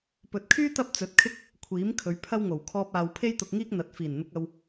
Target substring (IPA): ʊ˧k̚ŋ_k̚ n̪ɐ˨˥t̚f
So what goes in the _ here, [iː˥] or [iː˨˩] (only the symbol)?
iː˥